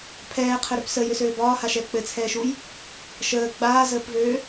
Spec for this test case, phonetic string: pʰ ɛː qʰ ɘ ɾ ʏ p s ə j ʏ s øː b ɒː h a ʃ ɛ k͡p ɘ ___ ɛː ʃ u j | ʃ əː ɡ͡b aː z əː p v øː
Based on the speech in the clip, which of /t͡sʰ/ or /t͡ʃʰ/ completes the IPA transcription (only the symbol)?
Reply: t͡sʰ